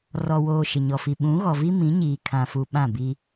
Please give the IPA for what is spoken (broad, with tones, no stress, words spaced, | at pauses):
rɔ˨woː˨ ʃɪ˨ɲɔ˨fi˨ ɓũ˨˦ ɣɔ˨vi˦ mĩ˨˦ɲiː˨kʰã˨fu˨ ɓã˦˨bi˦